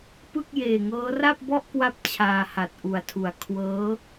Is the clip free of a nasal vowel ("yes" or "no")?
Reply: yes